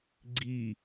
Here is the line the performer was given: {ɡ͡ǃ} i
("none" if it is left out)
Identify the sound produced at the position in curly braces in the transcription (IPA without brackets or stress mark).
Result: ɡ͡ǀ